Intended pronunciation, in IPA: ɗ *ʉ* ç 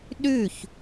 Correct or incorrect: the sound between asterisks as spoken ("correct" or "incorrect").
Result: correct